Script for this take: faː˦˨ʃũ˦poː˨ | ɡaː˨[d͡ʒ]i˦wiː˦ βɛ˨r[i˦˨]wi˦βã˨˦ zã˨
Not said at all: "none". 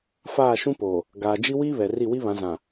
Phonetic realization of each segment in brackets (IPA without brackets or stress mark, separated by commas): d͡ʒ, i˦˨